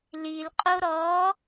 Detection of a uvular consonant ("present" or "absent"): present